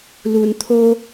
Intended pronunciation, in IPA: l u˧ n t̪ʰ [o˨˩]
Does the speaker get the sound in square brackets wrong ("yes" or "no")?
yes